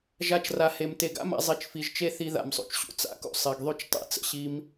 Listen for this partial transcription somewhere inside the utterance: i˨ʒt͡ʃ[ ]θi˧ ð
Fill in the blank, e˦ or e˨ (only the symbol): e˦